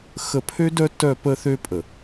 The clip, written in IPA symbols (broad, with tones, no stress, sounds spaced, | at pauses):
x ə˨ pʰ ø˦ d œ˦ t œ˦˨ p ə˦ θ ø˦ pʼ ə˨